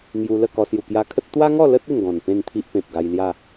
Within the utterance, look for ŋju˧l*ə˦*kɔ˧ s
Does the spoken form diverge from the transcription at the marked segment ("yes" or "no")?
yes